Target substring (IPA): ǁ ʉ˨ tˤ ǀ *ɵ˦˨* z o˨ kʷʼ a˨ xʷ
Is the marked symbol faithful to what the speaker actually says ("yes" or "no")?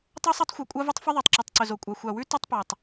no